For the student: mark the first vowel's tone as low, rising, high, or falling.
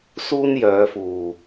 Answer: high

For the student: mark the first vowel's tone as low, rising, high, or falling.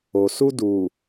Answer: low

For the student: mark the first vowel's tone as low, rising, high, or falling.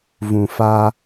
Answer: low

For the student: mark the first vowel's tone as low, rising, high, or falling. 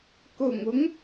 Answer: low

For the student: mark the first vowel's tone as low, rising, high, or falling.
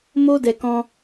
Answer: high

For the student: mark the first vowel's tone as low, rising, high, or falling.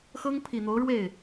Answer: high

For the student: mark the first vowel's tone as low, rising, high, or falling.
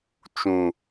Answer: low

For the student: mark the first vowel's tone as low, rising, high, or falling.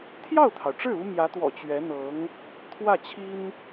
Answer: falling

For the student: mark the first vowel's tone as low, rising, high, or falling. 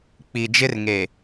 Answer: low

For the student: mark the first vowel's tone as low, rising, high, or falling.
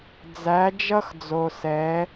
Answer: rising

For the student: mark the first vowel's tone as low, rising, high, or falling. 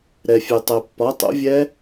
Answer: low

